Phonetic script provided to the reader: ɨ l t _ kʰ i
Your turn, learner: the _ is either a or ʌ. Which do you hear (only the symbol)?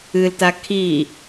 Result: a